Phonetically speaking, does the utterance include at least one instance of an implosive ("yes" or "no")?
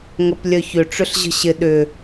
yes